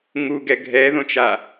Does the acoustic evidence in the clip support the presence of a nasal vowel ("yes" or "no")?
yes